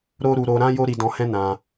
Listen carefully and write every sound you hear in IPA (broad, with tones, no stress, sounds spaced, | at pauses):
ɾ o˦ ɾ u˧ ɾ o˧ ɾ ã˦ j o˦ ɾ i˧ d ɔ̃˧ h ɛ̃˦ n ã˧